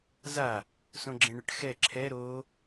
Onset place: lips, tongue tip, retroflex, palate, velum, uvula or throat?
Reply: tongue tip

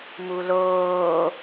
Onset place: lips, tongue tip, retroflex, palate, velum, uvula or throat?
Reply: lips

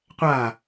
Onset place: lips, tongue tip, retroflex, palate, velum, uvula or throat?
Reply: uvula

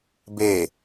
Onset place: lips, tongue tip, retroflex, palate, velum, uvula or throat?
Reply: lips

